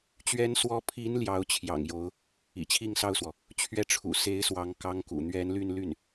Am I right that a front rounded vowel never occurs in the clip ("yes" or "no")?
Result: no